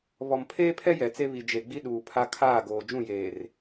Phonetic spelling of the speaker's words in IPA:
β ɔ˨ m pʰ eː˦ pʰ ɛ˦ j ɛ˨ t͡s e˦ β i˨ d͡ʒ e˨ ɡ͡b i˦ ɗ uː˨ pʰ a˦ kʰ aː˦˨ ɡ oː˨ d͡ʒ ũ˦˨ j eː˨ r

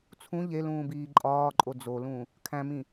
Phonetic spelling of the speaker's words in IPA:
t͡sʰ ũ ʎ e l ũː b iː ǃʼ ɒː ǃʼ o d͡z o l ũ | kʰ æ̃ m ĩ

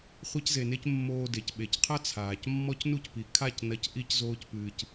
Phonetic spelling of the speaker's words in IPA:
χʷ e˧ c z e˨ n e˧ c mː oː˧ d e˨ c ɓ e˨ c qʰ ɐ˦ t͡sʰ aː˨ c mː ɔ˧ c n u˧ c p i˨ kʰ a˦˨ c n ɐ˧ c ʔ i˦ c z oː˦ c p ɨː˧ c

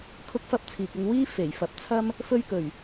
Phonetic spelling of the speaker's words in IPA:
kʰ ʊ˥ k̚ f ɐ˥ p̚ t͡sʰ iː˨ k̚ ʊ˧ ŋ w iː˥ f e˨˩ j f ɐ˨˥ p̚ t͡sʰ ɐ˥ m | f ɵ˥ ɥ k ɵ˨˩ ɥ

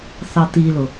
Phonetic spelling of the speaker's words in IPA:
θ ɑ t̪ i l ʊ

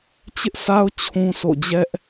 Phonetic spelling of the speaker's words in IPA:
t͡ɕ ɪ˦ ʔ sʰ a˦ ʊ̯ t͡ɕʰ ũ˦ s o̰˦˨ d͡ʑ ɛ˦ ʔ

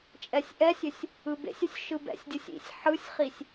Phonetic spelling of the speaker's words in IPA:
t͡ʃʼ ɛ sʲ ʔ ɛ sʲ ʏ sʲ | ɯ b ḛ sʲ ʏ sʲ ʃ ɯ b ɛ̰ sʲ dʲ ɯ sʲ ḭ sʲ ħ ɯ sʲ χ i sʲ

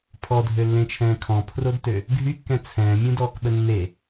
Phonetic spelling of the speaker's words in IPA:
pʰ ɔ dʱ ø lː ẽ t͡ʃʰ ɛ̃ː kʰ ɔ̃ pʰ r o d t ø | ɡʱ y kː ɛ̃ t͡sʰ ɛ̃ː mʲ ũ d ɔː k ɓ ə nː e

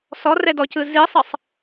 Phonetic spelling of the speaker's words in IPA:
s ɔ r ɛ d ɔ c ɯ z i sˤ ɤ sˤ

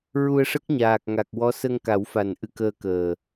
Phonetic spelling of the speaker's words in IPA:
ɹ u˧ ə̯ ʂ ə˦˥ k̚ ɲ aː˨˩ k̚ ŋ a˨˩ k̚ w ɔ˧˥ s ə˧ ŋ k a˨˩˦ w f a˨˩ n ʔ ɨ˧ k əː˧ k əː˨˩

